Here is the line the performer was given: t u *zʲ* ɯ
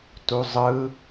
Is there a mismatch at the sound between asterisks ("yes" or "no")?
yes